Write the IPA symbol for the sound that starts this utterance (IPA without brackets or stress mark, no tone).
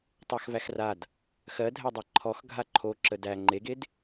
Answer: tˤ